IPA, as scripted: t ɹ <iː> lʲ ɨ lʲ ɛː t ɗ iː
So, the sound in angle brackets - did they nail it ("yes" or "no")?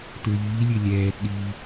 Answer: yes